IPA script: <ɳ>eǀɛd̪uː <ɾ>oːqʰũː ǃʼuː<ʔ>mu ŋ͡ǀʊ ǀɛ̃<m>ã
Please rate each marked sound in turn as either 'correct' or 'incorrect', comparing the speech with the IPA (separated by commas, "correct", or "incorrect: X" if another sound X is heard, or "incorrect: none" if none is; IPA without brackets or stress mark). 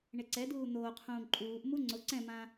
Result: correct, incorrect: n̪, correct, correct